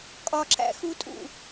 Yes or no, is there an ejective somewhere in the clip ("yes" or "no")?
yes